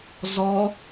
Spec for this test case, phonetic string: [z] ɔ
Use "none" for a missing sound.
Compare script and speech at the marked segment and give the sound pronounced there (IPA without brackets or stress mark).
z